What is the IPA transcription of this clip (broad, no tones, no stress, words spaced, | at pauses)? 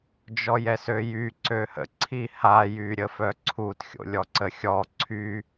d͡ʒɔjɛsøjy ǀøhə̰ ǀʰiha jyɾʲəfœǀʰut xʲo̰lʲɔǀəxʲɔ ǀʰy